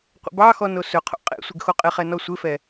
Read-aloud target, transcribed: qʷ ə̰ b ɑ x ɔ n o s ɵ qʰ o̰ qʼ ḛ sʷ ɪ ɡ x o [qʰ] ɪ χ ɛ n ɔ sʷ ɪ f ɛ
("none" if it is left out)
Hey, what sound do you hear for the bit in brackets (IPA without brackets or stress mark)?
qʼ